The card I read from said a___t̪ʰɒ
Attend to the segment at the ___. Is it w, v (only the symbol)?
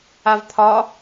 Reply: v